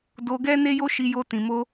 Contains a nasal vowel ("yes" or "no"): yes